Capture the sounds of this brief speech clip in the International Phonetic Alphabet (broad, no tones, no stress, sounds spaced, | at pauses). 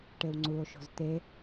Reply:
ʈ e w ŋ͡ǀ u o̯ ʃ o̤ z t̪ e